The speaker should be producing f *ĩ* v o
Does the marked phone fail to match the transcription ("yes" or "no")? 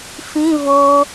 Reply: no